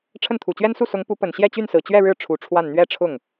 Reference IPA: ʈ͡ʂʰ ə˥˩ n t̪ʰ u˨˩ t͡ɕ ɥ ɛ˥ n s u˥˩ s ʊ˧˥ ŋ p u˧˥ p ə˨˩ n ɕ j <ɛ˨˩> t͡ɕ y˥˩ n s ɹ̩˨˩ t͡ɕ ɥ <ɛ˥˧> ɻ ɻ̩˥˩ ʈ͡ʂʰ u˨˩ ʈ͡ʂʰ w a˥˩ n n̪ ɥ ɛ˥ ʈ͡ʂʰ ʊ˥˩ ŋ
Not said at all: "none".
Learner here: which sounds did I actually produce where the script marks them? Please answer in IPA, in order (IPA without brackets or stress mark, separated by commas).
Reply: ɛ˥˧, ɛ˥˧